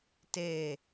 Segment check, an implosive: absent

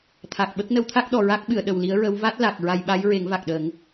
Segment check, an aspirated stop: present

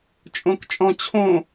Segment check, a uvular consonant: absent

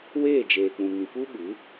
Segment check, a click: absent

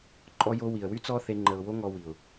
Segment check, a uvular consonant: absent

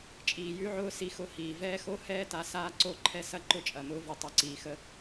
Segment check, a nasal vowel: absent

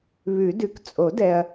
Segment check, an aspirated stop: absent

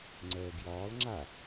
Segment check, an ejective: absent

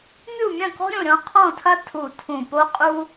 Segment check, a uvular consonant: present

